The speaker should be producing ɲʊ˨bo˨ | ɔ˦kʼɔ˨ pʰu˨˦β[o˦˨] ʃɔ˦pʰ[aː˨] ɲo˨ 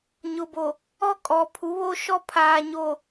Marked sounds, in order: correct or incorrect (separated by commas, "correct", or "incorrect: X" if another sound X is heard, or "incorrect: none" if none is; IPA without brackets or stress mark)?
incorrect: o˦, correct